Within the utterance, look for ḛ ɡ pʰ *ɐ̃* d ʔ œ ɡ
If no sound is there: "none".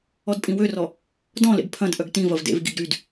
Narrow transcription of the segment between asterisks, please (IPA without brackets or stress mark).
ɐ̃